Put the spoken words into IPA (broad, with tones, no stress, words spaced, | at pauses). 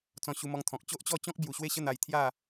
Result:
t͡sɔ̃˧ɕu˧mɔ˧ŋt̪ʰɔ̃˨k̚ t͡ɕo˦ʔt͡ɕɔ˥˧t͡ɕɔ̃˦k̚ bju˨˩ɕwe˥˧ɕə˥˧ n̪a˧j t̪ʰja˥˧